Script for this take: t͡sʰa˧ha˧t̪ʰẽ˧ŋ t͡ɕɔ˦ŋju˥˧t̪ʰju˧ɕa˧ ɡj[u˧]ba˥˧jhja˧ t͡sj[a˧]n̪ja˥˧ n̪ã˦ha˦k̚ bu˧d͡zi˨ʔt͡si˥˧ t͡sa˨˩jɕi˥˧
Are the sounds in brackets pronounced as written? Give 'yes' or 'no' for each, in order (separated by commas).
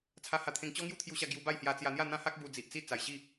yes, yes